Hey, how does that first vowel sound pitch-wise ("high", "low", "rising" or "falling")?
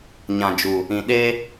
low